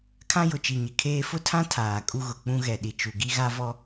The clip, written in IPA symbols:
kʰ ã˦ j ʊ˨ t͡ʃ i˨ ɲ ɪ˨ kʰ eː˦ f ʊ˦ tʰ ã˦ tʰ aː˨ kʼ u˦ ɣ ʊ˨ k͡p ũ˦ ɣ ɛ˨ ɗ i˨ t͡ʃ u˨ ɡ i˦ ɣ a˦ v ɔ˦

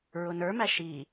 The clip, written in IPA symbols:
ɹ ʊ n ə˞ m æ ʃ i

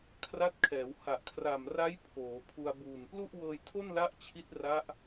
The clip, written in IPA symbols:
kʰ r a˦˥ t̚ kʰ ɛː˩˦ w h a˨˩ ʔ kʰ r a˨˩ m r a˦˥ j pʰ oː˩˦ pʰ u˧ a̯ b uː˨˩ n p l u˥˩ ʔ w ɤː˧ j tʰ o˥˩ n l a˦˥ ʔ t͡ɕʰ i˦˥ t̚ r a˦˥ ʔ

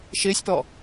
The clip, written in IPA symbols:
ʃ ɪː sʲ p ɔ

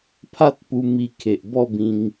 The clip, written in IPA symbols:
pʰ a˦ t̚ p u˧ m i˧ kʰ e˨ ʔ b ɔ˥˧ b ĩ˧ ŋ

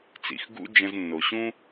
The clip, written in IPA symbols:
t͡s ḭ˩ x ɡ ṵ˥ d͡ʒ ə̃˧ z nː o˩ ɕ ũ˥

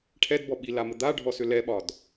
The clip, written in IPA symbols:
ʈʰ ɛ d b ɔ ɓ i l a m ə d̪ a ɖʱ ɔ s ʏ l ɛ ɓ ɒ d

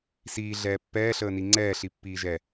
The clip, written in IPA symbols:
s iː ɮ ɛː pː ɛː ɬ əː n i ŋ͡ǀ ɛː ɬ i pː iː ʒ ɛ

